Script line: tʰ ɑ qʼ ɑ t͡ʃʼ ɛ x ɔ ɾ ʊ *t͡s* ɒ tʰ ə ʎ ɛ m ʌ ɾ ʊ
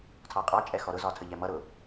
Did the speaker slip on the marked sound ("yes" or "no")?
yes